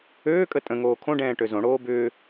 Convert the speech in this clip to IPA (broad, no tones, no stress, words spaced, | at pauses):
øːkʼə tʼə̃ŋoː kʰõɖɛ̃ːʈø zõɽoː bʏː